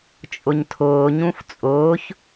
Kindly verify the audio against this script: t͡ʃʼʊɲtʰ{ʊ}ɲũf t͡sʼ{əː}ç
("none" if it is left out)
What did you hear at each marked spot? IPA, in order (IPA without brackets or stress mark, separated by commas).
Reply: ʊː, ʊː